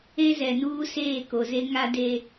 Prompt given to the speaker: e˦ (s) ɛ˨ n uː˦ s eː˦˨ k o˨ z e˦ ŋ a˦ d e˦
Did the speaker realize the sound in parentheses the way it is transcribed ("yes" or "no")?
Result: no